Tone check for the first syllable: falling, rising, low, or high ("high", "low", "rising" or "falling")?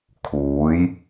rising